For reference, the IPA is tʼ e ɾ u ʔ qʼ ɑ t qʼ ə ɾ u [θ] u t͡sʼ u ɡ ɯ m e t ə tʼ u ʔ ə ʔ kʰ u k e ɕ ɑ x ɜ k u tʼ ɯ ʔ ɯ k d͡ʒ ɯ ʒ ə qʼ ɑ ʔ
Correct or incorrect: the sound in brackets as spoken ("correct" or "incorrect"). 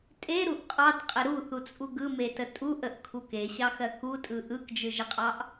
correct